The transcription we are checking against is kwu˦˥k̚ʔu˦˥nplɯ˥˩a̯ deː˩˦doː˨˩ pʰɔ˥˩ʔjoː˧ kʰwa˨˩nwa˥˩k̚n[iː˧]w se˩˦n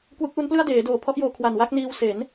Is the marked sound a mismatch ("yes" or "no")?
no